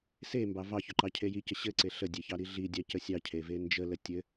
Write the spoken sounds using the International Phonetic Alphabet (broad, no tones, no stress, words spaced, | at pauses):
sembɑ vɑçɵǃɑcʰe jicə ɕɘǀe ɬədʲeçɑɾi ɮidʲɑcə sʲɑcʰeve nd͡ʒələ tʲɘ